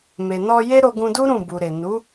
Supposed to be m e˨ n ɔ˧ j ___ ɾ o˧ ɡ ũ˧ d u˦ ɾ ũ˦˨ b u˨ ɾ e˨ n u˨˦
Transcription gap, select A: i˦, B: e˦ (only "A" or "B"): B